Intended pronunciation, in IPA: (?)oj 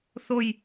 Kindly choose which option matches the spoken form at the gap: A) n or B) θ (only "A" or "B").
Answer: B